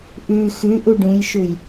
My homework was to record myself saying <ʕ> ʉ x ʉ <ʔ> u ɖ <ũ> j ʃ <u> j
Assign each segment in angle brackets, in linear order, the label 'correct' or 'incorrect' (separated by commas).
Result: incorrect, correct, correct, correct